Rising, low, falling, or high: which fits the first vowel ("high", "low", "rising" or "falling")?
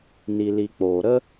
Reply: low